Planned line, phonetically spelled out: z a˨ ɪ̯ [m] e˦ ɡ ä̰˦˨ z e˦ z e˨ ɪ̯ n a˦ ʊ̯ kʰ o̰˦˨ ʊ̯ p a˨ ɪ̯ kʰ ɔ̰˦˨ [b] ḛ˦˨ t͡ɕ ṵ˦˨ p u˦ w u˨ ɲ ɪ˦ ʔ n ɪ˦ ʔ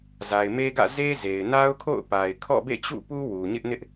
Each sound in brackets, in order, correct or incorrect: correct, correct

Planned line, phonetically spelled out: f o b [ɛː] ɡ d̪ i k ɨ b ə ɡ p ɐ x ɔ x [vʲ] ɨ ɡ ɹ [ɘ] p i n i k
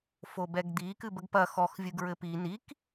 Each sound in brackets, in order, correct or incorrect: incorrect: ɛ, correct, correct

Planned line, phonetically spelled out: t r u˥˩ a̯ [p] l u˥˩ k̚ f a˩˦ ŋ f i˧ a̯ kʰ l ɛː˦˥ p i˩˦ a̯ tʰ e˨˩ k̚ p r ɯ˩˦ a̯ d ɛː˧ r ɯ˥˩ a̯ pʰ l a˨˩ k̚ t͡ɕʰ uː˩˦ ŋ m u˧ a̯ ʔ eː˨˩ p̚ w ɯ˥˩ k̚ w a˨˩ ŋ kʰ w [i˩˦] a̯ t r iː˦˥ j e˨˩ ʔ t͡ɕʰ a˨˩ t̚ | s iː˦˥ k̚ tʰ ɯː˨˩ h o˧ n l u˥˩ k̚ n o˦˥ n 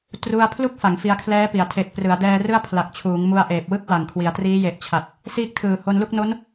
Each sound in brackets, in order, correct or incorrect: incorrect: pʰ, correct

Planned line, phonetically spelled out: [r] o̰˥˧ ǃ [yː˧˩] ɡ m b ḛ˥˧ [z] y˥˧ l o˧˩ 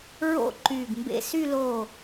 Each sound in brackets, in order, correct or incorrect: incorrect: ɹ, correct, incorrect: s

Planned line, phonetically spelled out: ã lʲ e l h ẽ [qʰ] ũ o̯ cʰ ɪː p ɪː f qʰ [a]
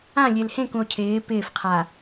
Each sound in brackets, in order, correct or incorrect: incorrect: k, correct

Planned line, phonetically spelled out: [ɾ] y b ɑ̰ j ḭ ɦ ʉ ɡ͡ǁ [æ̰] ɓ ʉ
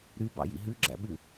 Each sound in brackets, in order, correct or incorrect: correct, correct

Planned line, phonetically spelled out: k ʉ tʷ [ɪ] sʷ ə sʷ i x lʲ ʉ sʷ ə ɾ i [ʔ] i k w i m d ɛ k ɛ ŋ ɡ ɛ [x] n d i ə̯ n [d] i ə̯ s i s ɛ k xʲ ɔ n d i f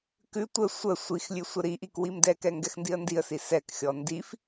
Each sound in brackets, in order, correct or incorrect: incorrect: ə, correct, correct, correct

